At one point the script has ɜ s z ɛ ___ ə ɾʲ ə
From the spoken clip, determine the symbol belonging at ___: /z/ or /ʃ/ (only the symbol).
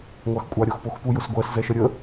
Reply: ʃ